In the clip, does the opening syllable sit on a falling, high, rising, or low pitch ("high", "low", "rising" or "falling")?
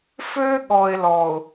high